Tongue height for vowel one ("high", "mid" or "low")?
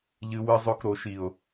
high